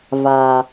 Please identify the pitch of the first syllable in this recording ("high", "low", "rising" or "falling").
low